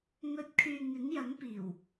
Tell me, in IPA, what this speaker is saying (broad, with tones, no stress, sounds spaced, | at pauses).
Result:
ŋ ɵ˨˥ t̚ kʰ yː˨ ŋ ɪ˨˥ ŋ j ɐ˨˥ ŋ p iː˨˩ w